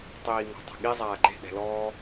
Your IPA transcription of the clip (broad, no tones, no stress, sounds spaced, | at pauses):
tˤ iː ŋ ɔ̤ tˤ ɛ̤ ɠ i zˤ aː ɡ͡ǃ e̤ ɗ ɛ̤ l ɔː